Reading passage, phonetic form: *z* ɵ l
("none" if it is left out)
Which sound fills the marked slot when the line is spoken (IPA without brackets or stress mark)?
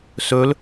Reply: s